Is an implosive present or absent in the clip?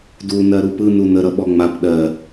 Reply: present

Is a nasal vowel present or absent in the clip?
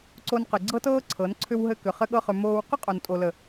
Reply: absent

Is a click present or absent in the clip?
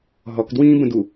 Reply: absent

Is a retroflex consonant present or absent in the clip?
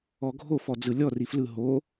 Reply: absent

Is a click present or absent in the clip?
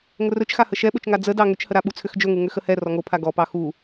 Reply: absent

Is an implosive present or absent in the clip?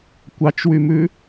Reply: absent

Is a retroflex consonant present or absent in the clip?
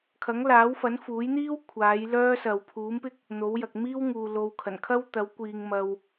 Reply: absent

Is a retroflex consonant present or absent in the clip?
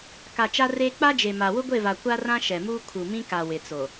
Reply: absent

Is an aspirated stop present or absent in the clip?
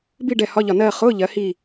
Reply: absent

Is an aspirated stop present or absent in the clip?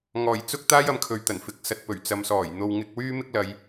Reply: present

